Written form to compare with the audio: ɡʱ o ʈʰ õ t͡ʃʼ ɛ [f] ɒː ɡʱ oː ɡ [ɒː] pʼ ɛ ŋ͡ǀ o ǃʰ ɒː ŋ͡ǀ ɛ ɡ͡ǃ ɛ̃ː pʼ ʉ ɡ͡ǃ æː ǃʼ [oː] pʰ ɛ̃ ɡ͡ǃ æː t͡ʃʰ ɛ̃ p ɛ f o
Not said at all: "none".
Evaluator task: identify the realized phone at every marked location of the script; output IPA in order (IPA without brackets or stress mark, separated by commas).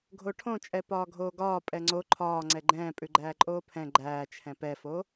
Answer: p, ɒː, oː